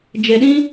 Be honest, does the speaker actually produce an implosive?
yes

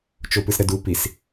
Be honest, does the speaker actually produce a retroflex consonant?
no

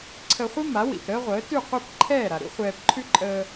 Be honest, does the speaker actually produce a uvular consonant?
yes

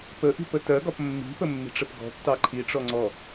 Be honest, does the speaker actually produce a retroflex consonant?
yes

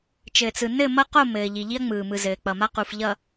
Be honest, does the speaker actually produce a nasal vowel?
no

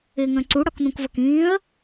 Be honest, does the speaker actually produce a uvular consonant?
no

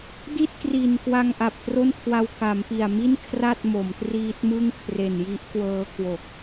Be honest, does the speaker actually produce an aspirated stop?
yes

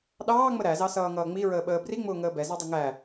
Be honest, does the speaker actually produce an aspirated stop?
no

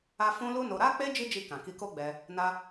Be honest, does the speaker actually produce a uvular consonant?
no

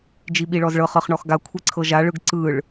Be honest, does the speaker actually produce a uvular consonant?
yes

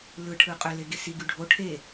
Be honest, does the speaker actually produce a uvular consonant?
yes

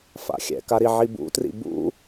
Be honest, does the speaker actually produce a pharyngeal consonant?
yes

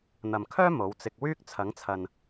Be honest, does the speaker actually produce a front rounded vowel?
yes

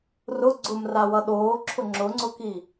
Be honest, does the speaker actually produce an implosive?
yes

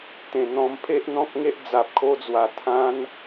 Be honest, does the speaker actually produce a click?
no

